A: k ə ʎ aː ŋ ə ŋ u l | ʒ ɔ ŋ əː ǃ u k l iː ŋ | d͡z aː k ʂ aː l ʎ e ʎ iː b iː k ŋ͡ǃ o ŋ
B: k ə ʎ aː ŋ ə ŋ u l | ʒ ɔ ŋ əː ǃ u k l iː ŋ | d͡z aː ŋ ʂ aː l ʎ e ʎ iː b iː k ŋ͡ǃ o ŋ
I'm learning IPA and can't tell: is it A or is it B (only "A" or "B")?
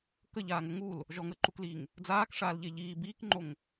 A